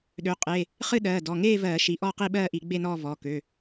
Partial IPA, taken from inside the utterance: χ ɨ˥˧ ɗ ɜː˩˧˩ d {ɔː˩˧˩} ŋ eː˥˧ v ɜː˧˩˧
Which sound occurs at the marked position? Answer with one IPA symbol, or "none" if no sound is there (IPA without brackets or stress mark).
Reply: ɔ˩˧˩